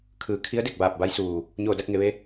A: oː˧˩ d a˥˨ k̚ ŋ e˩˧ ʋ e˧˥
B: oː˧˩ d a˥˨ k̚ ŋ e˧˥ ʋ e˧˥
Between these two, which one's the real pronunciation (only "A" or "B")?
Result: A